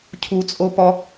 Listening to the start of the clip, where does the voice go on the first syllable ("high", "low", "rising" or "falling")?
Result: low